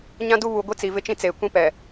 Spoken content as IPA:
ɲã˦du˦ βu˨ ɡʷi˦t͡si˨ vɪ˦t͡ʃĩ˦ t͡seː˨kʷĩ˦pɛ˨

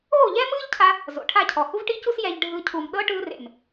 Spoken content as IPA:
oː˦˨ʎɛː˦mɯː˦ʎcʰa˧ | zo̰˨ʈʰa˦˨cʰɔ˨ hu˦vʈi˦cu˦s jɛ˧ʎ ɖʱɯ˧ cʰu˨mɗɤ˦ ʈɯː˧rḛ˨m

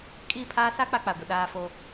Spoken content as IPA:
kʼiː˦˨pʰaː˦ sa˦ k͡pa˦k͡pa˨ɡʷɪ˨ ɗaː˦fo˦

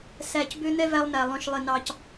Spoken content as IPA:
sæ˨cbø˦n̪ɛ˦ væ˦lˠnæ˨ lˠœ̃˨ʃlˠe˨nɑ˨c

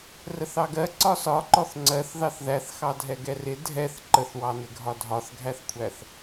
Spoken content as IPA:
rəθɑɡɜ ǀɒsɒǃɔθ ŋ͡ǀɜθ ðɑθðæθxɑdʱɛ ɡɛrɪ dʱɛθ ǃəθwɑnɪɡʱɒ dʱɒθɡʱæθkʷʰæθ

